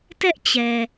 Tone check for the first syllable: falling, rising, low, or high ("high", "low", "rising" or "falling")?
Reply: high